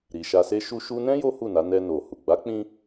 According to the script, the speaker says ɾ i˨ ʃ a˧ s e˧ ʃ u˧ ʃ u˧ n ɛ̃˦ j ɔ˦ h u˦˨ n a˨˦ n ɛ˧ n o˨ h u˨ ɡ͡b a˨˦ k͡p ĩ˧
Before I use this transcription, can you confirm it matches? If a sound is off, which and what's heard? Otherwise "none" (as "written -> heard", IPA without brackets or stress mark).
ɔ˦ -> o˦